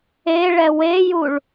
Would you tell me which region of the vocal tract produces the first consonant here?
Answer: retroflex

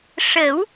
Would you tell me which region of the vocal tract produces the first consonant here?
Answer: retroflex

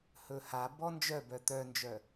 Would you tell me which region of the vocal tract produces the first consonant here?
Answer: throat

